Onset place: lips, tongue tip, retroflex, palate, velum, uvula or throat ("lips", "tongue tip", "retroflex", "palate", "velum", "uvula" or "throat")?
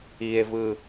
lips